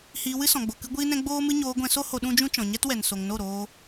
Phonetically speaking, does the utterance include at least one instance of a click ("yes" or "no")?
no